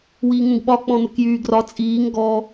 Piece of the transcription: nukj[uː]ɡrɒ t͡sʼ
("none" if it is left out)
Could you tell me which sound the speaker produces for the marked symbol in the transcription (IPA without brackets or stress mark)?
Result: yː